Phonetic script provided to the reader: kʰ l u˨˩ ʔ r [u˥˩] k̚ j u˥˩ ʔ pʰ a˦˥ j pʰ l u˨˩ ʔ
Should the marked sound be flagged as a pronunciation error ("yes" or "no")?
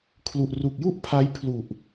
yes